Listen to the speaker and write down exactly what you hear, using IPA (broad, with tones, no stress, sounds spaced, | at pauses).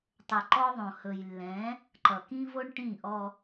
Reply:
tˤ ə˨ ǃ ɔ˦ ðˤ õ˨ h ɵ˨ j lː ɛ̃˨˦ | ǃ ʌ˨ k ĩ˦ v o˦ ɳ ʈ ĩ˦˨ ʔ ɔ˦